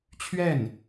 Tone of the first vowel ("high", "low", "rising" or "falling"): falling